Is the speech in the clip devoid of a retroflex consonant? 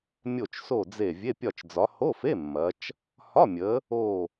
yes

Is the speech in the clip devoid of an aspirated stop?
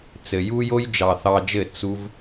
yes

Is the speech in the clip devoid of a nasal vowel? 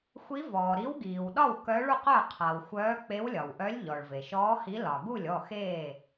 yes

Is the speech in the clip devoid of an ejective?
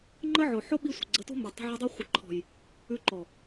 yes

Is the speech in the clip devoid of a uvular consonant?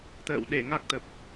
yes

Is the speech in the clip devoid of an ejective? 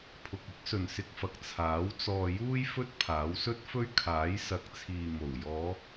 yes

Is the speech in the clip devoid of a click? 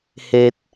yes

